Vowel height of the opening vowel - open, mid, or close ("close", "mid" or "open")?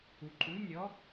close